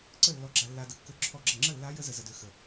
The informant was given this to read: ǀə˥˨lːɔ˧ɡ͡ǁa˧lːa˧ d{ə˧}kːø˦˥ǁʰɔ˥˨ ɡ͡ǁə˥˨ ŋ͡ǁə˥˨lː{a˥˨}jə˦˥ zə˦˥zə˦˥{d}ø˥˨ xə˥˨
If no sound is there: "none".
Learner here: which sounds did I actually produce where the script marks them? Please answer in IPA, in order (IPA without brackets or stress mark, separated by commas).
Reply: ə˧, a˦˥, d